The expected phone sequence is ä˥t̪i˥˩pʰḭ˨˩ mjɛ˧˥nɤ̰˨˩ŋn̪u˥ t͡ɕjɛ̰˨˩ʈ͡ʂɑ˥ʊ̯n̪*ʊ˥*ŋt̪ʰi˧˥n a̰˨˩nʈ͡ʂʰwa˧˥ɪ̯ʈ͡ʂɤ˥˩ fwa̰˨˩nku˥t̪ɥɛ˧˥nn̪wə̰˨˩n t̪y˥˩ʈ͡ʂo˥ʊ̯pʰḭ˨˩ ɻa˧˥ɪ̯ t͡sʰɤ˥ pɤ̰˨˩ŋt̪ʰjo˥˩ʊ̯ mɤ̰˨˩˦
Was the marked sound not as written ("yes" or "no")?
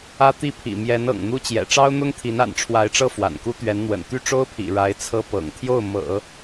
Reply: no